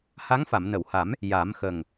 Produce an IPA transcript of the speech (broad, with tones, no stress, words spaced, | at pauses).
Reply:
ha˧˥ŋfa˨˩˨mnə˨˩˨wha˨˩˦m | ja˨˩˦mxə˨˩ŋ